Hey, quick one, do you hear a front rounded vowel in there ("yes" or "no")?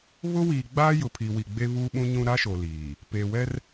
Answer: no